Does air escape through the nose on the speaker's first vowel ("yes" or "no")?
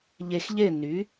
no